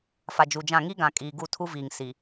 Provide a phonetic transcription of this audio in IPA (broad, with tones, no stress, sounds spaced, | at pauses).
f a˨ d͡ʒ u˨ d͡ʒ ã˦˨ ŋ i˦ ɡ ã˨ kʼ iː˨ ɡ u˦˨ tʰ u˦ v iː˨ ŋ s i˨